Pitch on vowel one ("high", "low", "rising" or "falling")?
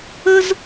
high